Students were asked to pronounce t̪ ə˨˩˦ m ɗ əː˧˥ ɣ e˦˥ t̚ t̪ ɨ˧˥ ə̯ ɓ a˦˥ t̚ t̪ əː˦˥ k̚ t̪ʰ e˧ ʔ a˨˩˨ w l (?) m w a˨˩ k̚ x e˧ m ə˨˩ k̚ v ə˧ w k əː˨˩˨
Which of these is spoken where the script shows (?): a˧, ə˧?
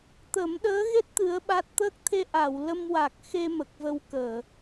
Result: ə˧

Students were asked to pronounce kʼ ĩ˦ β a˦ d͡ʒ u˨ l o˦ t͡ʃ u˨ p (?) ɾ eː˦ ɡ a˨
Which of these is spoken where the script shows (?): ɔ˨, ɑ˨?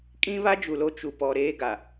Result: ɔ˨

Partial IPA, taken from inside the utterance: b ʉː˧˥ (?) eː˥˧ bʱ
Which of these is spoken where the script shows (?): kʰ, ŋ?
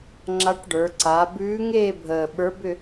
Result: ŋ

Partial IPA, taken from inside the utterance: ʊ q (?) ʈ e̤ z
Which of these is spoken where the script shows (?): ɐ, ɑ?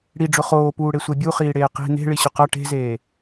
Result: ɐ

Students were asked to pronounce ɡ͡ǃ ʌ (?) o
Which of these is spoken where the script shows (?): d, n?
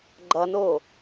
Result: n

